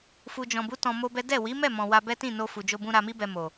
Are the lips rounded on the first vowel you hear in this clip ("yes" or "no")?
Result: yes